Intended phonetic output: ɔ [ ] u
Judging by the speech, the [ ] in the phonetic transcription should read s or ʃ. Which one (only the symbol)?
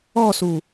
s